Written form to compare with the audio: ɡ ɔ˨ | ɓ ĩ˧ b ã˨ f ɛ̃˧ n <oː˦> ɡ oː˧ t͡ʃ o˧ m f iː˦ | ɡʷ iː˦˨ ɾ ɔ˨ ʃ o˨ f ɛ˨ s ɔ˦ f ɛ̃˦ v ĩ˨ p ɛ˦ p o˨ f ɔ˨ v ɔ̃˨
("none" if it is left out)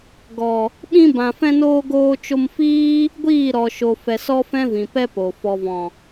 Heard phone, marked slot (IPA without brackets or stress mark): oː˧